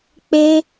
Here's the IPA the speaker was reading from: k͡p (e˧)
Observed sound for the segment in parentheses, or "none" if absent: e˧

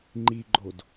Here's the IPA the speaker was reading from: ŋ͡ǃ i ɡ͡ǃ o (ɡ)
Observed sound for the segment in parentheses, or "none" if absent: d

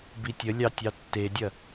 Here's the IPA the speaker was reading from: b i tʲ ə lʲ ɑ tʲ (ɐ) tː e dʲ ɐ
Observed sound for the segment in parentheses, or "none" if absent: ɑ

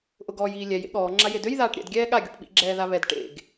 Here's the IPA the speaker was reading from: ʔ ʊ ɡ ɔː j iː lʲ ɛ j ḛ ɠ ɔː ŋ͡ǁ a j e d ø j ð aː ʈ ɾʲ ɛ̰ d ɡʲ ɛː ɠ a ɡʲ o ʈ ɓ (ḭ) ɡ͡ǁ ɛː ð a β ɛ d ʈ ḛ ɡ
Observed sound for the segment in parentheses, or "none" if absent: ḭ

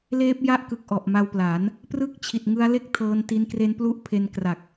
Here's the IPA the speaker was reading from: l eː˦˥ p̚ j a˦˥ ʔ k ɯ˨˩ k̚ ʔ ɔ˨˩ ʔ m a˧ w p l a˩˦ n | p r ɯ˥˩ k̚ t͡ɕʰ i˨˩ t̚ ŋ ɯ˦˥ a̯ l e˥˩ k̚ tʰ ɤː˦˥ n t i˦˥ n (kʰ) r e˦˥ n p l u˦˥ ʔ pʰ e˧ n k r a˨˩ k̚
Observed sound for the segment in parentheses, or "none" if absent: k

